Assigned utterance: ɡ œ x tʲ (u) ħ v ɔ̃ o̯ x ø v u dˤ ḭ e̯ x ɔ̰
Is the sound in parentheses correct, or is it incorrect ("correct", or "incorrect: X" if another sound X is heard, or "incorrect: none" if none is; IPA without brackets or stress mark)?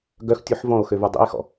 correct